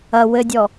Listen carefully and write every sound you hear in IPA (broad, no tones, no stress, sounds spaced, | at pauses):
ɐ w ɘ dʲ ɔ